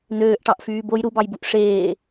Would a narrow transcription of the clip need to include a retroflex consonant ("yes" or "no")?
yes